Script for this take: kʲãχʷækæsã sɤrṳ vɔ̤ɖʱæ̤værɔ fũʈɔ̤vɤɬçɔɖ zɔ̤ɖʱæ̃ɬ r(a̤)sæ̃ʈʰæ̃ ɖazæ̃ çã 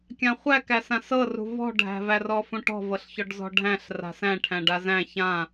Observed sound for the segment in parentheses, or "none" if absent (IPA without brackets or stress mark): a̤